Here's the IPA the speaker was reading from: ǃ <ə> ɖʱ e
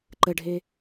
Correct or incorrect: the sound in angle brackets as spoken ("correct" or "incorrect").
correct